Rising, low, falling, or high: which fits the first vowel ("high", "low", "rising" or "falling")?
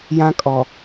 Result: high